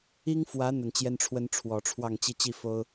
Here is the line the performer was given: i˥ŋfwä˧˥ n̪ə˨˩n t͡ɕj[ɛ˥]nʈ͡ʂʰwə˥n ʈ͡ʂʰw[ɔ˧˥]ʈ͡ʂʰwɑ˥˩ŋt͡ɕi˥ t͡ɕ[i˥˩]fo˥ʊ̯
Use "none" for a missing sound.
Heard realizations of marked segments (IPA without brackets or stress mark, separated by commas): ɛ˥, ɔ˨˩, i˥˩